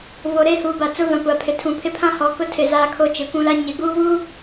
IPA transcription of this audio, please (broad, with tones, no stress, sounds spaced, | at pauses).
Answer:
v o˨ ɾ eː˦ h uː˨ b a˨ t͡s ʊ˦ v ã˨ kʷ a˨ pʰ ɪ˨ tʰ ũ˨ pʰ ɪ˦ pʰ ã˦ h ɔ˨ k ʊ˦ tʰ ɪ˨ z aː˦ kʰ o˦ t͡ʃ ɪ˨ kʷ ũ˦ l a˦ ɲ ɪ˨˦ ɡ uː˦ w uː˦